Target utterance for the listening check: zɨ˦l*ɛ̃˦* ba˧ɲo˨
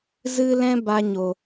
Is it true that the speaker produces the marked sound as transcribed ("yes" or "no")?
yes